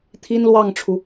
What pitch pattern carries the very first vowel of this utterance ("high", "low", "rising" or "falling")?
high